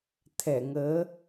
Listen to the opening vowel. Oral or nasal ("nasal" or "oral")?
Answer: oral